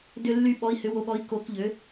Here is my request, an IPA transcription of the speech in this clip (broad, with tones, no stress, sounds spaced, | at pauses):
d ʏ˧ lː y˧ ɓ ɔ˩˧ i̯ h ʏ˩˧ w o˩˧ ɠ ɔ˩˧ i̯ k o˩˧ k ʎ ø˩˧